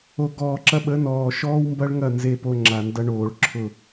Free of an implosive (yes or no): no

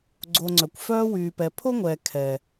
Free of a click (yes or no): no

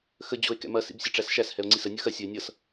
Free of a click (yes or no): no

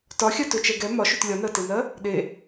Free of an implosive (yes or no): no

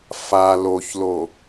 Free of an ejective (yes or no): yes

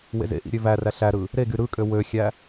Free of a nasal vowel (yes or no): yes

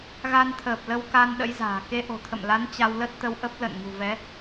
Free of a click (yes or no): yes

